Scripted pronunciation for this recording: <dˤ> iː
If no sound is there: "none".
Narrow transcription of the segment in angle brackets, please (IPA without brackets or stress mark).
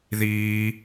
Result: ð